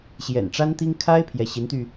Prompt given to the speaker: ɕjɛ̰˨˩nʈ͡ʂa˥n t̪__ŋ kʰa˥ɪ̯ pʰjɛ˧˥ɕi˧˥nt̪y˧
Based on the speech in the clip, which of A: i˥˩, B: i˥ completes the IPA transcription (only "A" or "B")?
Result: B